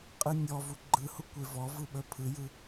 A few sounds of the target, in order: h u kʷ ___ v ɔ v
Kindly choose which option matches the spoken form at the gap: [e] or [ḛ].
e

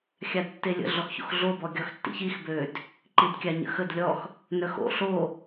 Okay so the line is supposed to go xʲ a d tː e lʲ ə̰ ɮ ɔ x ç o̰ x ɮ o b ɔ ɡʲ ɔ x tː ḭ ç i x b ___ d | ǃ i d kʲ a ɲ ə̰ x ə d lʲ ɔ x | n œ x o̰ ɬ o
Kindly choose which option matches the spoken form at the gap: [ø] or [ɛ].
ø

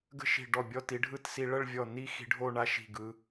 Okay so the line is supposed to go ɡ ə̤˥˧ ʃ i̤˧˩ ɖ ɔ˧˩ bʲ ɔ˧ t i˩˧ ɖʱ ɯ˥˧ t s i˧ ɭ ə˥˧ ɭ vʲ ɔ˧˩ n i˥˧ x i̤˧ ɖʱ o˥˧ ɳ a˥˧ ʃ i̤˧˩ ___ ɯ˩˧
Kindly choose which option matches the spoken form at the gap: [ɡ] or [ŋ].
ɡ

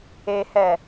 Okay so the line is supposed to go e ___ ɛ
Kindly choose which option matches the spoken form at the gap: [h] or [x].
h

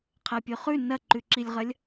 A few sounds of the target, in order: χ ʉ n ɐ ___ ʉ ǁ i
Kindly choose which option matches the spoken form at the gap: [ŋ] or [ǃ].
ǃ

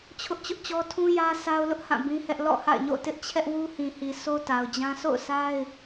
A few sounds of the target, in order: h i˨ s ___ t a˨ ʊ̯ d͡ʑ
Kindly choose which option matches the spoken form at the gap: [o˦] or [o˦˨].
o˦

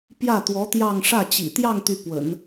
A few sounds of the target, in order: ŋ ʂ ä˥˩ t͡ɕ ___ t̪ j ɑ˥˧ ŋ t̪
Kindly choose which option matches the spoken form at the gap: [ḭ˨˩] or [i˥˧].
ḭ˨˩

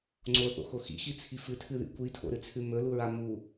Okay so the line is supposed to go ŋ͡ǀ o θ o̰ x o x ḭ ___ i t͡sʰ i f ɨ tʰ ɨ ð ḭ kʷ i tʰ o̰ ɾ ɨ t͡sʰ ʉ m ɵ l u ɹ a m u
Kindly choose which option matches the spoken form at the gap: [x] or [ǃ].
x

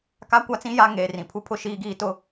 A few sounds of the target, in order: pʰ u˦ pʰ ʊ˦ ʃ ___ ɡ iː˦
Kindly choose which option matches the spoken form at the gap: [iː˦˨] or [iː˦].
iː˦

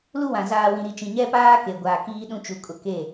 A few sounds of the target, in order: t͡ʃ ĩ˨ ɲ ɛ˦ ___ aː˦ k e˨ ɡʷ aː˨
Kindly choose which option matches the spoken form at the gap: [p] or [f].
p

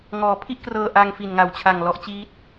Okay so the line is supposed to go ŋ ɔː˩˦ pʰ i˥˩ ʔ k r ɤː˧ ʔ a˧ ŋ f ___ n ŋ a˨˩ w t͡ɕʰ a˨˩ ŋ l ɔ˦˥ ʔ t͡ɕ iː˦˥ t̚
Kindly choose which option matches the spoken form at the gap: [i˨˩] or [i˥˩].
i˨˩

